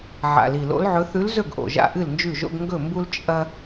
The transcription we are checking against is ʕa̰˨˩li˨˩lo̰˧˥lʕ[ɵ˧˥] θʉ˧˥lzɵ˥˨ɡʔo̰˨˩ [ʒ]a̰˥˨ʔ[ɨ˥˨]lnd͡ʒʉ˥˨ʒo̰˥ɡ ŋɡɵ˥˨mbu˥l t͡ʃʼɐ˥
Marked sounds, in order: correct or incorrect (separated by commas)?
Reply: correct, correct, correct